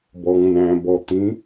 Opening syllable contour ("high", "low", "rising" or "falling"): low